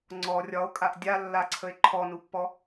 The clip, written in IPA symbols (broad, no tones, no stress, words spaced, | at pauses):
ŋ͡ǀɔ rʲɒo̯kʼaʔ dʲalːaǀʰəe̯ ǃʰɔnupːɔ